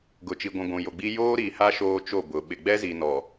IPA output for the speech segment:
ɡ ʊ˨ t͡ʃ i˨ ɡʷ ũ˨ ɡʷ ũ˨ j o˨ ɡ͡b i˦ j oː˦ ɾ i˨ h a˦ ʃ oː˦ t͡ʃ o˦˨ b ʊ˨ ɓ ɪ˨ ɡ͡b ɛ˦ z i˨ n ɔ˨

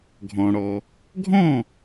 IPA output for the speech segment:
ɡʱ ɔ̃˩ ɽ ɔ˩ | ɡʱ ɔ̃˥˩

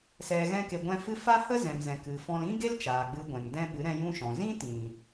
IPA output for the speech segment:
s ɛ˨ ɣ ɛ̃˧ k e˨ ɡʷ ɛ̃˦ f ɨ˧ f a˦ h ə˦ z ɛ̃˨ m z ɛ̃˨ k ɨ˨ f ɔ̃˧ l ĩ˦ ɡ e˦ l t͡ʃ aː˨ ɡ͡b ɨ˧ ɡʷ ɛ̃˨ ŋ d ɛ̃˦ ɓ ɨ˨˦ ɾ ɛ̃˧ j ũ˦ ʃ ɔ̃˨ z ĩ˦ t ĩ˨

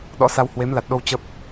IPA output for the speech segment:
ɗ ɔ̰˧˥ s a˧ w h w e˨˦ m l a˨˩ t̚ ɗ o˧ w t͡ɕ ə˦˥ p̚

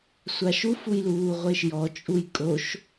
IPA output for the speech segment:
sʷ a ʃ u f u j l uː ʁʷ e ʃ j ɔ t͡ʃʼ u j kʼ o ʃ

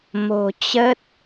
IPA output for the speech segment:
m o̤˨˩ t͡ɕ ə˦˥ t̚

